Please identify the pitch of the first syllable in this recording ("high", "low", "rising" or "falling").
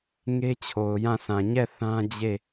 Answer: high